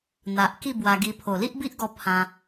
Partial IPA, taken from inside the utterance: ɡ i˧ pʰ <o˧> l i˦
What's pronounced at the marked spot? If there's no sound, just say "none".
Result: o˨˩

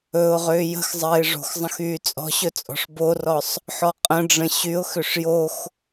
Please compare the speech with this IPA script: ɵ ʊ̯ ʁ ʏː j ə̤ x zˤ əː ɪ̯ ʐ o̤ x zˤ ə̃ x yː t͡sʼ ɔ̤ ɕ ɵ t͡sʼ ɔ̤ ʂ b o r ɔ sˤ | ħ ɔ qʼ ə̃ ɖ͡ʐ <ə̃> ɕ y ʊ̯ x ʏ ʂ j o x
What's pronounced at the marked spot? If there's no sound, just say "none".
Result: ə̃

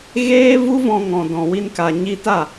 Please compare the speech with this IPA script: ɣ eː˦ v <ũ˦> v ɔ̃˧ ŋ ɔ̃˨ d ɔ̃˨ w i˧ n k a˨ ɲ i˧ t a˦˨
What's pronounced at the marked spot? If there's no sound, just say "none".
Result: u˦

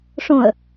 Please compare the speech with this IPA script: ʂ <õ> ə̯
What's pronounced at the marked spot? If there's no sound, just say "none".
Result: õ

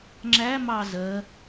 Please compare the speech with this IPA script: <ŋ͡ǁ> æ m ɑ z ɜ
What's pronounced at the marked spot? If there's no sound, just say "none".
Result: ŋ͡ǁ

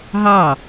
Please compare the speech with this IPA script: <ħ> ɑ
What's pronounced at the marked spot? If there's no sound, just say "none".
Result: ɦ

